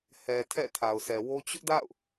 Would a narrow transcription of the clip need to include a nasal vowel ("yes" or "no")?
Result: no